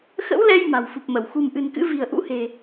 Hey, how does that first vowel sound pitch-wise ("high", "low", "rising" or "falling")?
rising